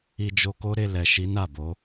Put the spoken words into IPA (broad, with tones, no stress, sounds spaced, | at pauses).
i˧ d͡ʒ o˧ k o˦ ɾ e˧ l ɛ˨ ʃ i˨˦ n a˦˨ b o˨˦